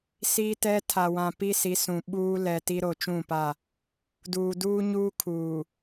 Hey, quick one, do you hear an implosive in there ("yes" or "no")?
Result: yes